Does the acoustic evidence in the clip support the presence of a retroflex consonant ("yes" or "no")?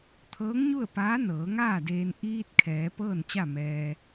no